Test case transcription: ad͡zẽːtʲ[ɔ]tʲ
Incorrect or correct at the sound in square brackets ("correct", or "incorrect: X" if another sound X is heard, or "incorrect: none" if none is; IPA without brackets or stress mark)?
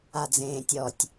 correct